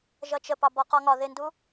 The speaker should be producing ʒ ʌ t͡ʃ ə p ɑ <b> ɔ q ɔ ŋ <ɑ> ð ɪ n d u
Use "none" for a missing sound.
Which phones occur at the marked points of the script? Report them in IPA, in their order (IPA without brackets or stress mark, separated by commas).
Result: b, ɒ